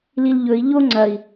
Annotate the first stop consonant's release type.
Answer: click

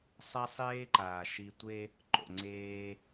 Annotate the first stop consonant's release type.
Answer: click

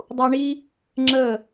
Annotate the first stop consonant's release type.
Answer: plain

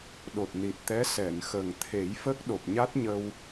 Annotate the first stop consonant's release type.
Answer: implosive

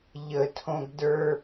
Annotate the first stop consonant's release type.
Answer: aspirated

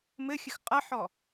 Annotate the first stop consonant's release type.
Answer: ejective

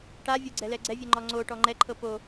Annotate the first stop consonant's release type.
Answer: plain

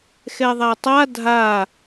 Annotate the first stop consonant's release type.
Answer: plain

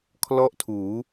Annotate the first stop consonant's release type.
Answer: aspirated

